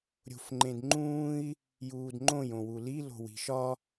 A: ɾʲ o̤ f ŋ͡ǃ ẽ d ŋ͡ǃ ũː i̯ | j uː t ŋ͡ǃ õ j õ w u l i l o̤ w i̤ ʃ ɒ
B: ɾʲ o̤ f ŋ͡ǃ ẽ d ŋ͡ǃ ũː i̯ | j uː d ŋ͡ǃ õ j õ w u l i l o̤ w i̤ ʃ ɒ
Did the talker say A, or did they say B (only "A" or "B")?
B